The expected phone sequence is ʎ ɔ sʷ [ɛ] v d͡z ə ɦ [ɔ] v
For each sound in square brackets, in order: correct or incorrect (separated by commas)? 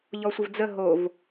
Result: incorrect, incorrect